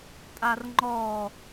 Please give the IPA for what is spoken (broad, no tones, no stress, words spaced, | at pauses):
tʼarŋ͡ǃɔ